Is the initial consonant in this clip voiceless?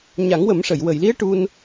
no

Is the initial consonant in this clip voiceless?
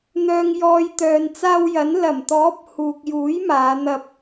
no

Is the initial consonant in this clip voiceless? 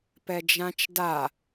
yes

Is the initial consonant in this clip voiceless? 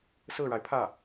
yes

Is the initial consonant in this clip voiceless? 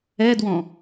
no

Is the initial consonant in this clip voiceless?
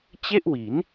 yes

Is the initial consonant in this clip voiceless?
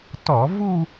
yes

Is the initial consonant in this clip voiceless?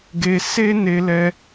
no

